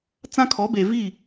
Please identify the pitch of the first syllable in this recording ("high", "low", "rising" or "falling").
high